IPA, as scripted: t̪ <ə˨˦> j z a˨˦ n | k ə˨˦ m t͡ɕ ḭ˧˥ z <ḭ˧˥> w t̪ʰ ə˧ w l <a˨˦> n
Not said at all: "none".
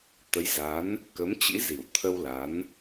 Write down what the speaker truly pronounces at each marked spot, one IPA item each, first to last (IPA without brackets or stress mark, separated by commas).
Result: ə˨˦, i˧˩, a˨˦